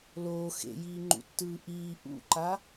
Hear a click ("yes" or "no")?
yes